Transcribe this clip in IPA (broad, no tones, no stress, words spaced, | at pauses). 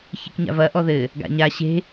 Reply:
çi̤kɲa̰vɐ ʔɔðɘ | ɡa̰ɲa ɕe̤